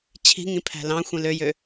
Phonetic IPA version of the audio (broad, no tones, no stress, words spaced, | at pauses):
t͡ɕʰi̤ŋĩ pʰæ̤lɑ̃xʷĩ løjø